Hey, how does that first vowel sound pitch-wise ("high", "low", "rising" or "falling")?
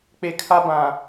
low